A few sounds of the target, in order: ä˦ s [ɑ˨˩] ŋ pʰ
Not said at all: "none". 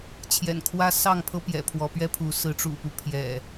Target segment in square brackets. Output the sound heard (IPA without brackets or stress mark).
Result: ɑ˥˨